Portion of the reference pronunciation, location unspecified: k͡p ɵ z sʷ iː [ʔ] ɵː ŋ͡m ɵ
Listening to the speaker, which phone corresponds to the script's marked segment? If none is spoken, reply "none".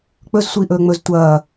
ʔ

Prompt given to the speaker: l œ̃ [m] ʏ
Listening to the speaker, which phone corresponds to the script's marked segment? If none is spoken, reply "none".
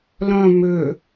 m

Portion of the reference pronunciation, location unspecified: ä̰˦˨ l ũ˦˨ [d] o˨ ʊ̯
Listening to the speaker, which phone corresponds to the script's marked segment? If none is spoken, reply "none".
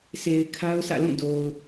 d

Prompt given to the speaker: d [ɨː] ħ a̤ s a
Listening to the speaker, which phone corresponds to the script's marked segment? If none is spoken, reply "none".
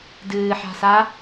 ɨː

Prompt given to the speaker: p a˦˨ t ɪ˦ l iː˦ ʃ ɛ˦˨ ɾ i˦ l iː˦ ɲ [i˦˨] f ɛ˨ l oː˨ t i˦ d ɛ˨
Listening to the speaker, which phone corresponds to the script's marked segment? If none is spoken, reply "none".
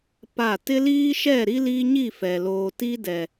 i˦˨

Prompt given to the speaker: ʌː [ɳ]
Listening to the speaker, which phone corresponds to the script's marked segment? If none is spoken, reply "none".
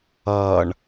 ɳ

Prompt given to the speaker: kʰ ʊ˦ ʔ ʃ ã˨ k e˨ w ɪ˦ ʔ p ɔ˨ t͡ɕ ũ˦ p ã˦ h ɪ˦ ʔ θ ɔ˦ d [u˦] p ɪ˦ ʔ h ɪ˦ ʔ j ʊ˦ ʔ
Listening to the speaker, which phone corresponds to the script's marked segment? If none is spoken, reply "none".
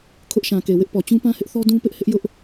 ũ˦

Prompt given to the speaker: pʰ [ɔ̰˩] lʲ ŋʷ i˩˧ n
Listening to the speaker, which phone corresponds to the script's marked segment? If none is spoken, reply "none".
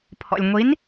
ɔ̰˩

